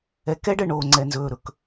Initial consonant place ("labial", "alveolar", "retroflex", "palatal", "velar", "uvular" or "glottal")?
velar